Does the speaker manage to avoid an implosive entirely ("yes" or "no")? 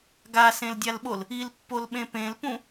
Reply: no